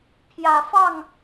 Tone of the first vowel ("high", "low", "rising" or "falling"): low